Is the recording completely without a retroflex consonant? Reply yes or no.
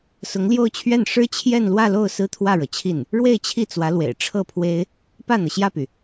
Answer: no